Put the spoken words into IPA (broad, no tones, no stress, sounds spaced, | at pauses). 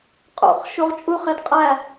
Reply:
qʼ o̰ χ ʃ u ʁ t͡ʃʼ u χ e d qʼ æ